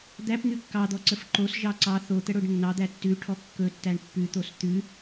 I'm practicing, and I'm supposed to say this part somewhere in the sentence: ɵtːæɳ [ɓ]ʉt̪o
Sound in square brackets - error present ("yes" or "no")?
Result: yes